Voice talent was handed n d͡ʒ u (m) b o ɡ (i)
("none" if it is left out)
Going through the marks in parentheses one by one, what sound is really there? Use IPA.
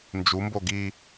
m, i

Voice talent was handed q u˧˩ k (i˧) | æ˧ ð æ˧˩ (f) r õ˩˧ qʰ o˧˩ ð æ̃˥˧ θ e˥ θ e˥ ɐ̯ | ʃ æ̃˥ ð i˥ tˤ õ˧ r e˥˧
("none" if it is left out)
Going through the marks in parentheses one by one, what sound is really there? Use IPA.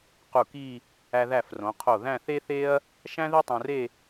i˥˧, f

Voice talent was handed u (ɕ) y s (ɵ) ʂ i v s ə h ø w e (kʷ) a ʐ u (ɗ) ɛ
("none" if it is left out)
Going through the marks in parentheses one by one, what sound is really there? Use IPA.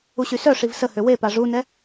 ɕ, œ, p, n

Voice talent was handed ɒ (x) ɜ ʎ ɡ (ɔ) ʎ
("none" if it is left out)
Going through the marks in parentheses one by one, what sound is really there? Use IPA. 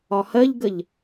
h, ə

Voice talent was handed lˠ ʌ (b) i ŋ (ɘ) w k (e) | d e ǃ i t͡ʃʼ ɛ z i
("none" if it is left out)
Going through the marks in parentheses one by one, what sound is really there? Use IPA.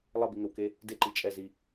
b, ɘ, e

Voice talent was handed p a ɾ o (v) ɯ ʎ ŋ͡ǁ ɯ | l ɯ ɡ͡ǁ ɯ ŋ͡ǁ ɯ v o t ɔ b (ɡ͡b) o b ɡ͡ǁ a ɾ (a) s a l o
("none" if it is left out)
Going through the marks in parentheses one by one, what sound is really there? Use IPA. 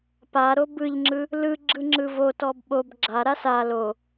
b, ɓ, a

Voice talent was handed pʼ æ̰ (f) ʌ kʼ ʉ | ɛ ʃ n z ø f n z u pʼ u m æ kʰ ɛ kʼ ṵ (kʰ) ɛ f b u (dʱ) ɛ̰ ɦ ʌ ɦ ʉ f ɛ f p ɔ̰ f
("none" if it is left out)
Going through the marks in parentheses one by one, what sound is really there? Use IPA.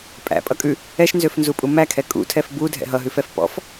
pʼ, tʰ, dʱ

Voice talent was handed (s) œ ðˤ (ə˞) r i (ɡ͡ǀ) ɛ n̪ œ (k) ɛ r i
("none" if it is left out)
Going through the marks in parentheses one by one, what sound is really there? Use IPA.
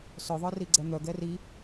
s, ə˞, ɡ͡ǀ, ɡ

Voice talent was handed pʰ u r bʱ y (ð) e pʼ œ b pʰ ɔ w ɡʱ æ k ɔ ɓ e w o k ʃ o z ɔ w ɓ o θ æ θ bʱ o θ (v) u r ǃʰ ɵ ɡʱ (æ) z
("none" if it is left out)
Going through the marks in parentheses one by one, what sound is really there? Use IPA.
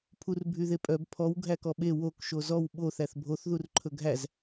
ð, ð, æ

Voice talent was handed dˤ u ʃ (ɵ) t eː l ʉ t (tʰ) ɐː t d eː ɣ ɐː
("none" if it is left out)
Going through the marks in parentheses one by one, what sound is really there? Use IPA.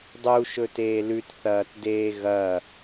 ɵ, θ

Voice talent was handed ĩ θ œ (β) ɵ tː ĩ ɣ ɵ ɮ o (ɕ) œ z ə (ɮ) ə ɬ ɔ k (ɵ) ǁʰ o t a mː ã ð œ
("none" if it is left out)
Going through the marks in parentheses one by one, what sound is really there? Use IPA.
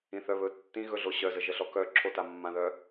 β, ɕ, ʒ, œ

